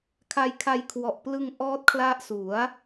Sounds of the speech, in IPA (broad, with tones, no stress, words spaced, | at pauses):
kʰa˧jkʰa˧jkʰwɔ˨˩ʔplɯ˧ŋ ʔɔː˦˥t̚kʰla˦˥ʔsu˩˦a̯